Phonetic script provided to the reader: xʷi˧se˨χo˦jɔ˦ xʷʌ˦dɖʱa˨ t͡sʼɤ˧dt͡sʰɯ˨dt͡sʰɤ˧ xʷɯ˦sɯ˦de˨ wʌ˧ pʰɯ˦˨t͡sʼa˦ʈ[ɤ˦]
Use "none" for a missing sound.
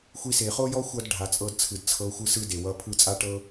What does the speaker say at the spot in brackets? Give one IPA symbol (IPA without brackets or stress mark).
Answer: ɤ˦